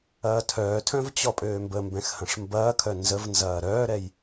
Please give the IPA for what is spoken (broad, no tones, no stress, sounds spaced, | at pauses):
ɐː tʰ œː tʰ œ̃ v t͡ɕ ɔ pʼ øː m b ə m b ɛ̃ x h ɐ̃ ʂ m b ɐː kʰ œ n z ə v n z ɐː ɾ œː ɾ ɛ j